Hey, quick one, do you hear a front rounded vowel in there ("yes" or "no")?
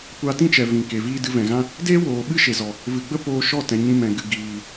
no